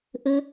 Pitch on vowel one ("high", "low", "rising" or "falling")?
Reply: high